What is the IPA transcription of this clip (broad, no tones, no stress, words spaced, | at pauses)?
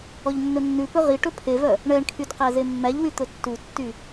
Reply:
ɔʎnːɵnːʉpɵ ʁi ʈɵpʰevœ | ɳɛɳkʰyd qæzemːæʎwy t̪ɵtːutːy